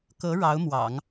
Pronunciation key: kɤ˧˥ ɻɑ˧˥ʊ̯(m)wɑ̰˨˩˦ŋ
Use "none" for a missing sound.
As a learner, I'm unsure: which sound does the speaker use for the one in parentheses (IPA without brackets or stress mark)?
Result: m